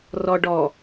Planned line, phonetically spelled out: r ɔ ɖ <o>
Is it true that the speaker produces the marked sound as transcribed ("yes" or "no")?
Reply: no